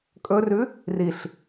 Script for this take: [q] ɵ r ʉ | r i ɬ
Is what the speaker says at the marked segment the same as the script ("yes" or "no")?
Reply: no